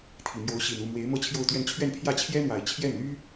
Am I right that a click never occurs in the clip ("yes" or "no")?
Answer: yes